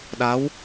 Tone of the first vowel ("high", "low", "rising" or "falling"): rising